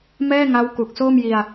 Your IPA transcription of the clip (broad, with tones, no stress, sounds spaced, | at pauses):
m ɛː˥˩ ŋ a˦˥ w k u˨˩ k̚ s oː˥˩ m j i˧ a̯